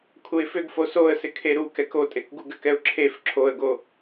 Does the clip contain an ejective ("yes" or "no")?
yes